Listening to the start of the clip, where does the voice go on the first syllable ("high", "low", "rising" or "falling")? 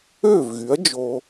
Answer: falling